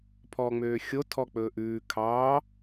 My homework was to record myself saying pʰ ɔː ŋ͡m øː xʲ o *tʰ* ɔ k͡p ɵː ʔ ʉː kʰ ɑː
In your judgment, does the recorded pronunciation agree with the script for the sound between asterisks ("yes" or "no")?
yes